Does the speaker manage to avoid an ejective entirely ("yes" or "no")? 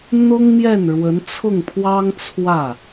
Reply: yes